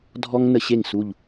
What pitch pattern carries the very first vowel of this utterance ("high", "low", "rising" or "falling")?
high